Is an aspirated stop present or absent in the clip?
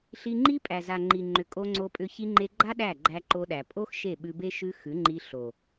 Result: absent